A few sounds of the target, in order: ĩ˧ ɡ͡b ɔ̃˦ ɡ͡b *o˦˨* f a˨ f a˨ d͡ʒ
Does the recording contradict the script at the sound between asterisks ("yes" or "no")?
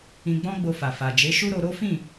yes